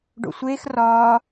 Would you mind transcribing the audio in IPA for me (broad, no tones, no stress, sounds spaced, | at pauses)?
ɖ o̰ sʷ eː x r ɒː